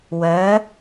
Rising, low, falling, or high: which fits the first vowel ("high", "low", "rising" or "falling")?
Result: rising